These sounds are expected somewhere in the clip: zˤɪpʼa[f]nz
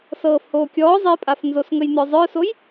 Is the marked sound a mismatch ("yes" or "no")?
no